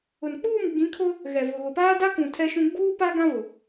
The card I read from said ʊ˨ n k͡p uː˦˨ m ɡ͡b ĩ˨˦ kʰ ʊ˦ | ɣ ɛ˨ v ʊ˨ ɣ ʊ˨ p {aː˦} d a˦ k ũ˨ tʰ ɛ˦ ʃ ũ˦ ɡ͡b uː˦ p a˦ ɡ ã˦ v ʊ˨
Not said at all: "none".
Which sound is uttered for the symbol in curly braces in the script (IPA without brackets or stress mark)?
aː˦